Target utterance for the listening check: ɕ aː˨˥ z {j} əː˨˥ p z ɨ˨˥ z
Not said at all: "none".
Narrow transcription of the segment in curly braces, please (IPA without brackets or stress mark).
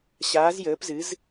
j